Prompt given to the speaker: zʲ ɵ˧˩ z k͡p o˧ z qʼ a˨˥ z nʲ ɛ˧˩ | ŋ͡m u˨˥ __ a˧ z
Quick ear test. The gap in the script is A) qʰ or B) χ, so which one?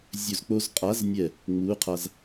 A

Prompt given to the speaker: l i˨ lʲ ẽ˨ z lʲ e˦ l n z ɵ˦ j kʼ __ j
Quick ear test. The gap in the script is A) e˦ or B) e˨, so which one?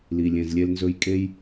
A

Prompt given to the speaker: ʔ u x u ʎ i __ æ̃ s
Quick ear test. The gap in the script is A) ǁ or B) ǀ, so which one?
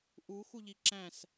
A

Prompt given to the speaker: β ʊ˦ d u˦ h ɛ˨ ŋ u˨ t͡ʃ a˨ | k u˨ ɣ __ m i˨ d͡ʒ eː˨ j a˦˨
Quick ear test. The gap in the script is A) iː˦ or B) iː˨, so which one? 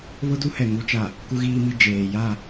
B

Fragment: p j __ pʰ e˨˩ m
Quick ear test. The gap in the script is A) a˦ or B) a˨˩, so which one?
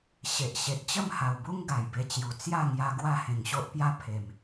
A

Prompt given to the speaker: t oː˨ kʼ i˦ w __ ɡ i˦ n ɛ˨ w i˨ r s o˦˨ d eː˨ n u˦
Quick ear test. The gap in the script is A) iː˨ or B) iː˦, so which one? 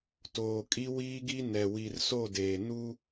B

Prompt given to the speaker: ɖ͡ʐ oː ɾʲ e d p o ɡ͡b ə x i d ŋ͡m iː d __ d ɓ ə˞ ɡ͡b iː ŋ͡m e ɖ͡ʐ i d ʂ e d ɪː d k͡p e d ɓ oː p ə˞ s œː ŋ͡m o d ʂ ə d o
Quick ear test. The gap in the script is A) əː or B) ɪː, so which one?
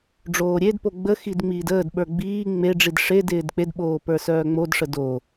A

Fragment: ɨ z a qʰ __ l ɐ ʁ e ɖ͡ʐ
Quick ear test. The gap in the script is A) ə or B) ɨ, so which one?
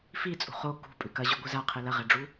B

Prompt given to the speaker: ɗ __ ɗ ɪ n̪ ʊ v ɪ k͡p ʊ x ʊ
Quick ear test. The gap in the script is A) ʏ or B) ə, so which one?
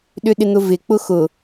A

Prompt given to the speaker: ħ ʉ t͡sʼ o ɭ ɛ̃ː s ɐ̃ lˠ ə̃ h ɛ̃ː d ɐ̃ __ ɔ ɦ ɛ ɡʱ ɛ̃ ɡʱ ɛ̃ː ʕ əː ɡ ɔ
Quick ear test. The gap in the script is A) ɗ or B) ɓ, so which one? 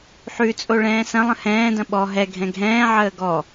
B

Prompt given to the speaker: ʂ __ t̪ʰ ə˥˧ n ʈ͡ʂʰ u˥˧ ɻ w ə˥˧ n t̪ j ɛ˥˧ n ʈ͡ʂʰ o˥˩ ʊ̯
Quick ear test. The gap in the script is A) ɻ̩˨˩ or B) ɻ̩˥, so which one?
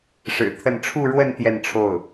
A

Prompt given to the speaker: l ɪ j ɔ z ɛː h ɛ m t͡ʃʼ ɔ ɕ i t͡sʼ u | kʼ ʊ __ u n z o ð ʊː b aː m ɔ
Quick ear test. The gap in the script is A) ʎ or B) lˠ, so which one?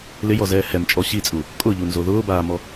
A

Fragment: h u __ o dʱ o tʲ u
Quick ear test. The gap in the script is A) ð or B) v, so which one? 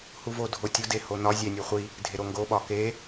B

